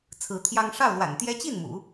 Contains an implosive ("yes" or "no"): no